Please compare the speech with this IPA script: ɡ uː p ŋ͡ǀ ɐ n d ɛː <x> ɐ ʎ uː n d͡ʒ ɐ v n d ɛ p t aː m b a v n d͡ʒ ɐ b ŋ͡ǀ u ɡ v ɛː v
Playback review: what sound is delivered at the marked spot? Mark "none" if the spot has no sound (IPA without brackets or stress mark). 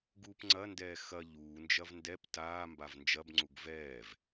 x